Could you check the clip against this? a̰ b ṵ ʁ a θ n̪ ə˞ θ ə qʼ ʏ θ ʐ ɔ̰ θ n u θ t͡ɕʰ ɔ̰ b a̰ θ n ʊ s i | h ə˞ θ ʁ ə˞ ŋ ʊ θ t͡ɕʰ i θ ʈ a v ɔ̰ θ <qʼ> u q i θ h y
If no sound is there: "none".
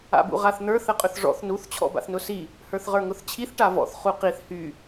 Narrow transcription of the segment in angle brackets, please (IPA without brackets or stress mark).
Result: χ